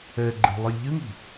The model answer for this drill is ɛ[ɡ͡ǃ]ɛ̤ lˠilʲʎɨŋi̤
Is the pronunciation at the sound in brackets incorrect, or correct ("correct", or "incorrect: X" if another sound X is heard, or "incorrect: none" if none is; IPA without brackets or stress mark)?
correct